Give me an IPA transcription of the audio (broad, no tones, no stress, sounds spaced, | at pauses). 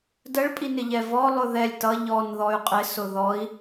d ə ɭ pʼ i n ɪ ʎ ɛ v ɔ lˠ ʊ ð ɛ lʲ t ʌ ʎ ɔ n ð ɔ y̯ qʼ ɪ s ʊ ð ɔ i̯